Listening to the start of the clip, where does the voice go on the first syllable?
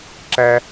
high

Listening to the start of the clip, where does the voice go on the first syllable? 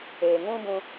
low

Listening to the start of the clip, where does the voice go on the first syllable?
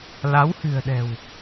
rising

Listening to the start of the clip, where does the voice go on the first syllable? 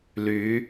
rising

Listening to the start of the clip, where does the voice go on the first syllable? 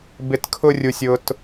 low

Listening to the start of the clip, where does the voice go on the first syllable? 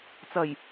low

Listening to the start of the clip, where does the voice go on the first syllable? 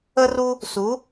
high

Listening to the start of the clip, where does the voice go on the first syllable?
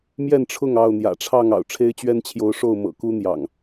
falling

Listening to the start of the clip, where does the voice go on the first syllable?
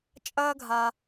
high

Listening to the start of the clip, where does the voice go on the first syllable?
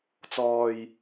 low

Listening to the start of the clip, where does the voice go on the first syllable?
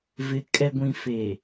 low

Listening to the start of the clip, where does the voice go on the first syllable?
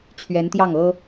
rising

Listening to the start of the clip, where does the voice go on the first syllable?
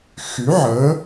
rising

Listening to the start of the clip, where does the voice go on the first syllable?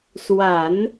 low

